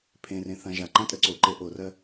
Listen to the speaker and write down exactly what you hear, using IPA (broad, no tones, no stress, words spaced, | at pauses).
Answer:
pʰẽrẽ θãʒa ǃãtʼəǀoǃe ʔorɜ